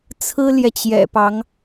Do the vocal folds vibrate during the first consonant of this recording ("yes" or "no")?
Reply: no